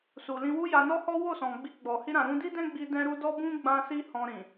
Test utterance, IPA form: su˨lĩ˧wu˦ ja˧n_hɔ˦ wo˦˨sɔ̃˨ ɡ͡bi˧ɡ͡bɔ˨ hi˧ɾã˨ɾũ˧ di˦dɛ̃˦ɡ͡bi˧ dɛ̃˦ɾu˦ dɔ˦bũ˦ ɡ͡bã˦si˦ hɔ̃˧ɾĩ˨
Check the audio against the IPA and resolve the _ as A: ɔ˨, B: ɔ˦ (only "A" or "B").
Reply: B